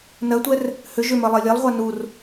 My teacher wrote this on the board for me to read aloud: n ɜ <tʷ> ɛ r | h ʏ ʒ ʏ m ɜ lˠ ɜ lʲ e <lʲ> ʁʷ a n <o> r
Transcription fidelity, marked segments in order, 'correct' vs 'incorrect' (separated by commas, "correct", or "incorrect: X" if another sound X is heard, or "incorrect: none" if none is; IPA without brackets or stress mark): correct, incorrect: lˠ, incorrect: u